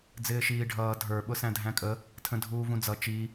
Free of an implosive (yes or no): no